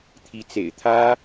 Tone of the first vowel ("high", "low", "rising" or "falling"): rising